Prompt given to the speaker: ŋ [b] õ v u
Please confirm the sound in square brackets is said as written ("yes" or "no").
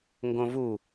no